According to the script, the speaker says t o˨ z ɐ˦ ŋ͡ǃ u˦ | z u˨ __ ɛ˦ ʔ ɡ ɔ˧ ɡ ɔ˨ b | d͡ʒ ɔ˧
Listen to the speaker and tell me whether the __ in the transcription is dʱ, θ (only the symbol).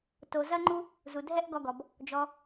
dʱ